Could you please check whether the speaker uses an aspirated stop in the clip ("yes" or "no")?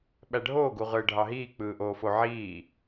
no